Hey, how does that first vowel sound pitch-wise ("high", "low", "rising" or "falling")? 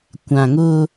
low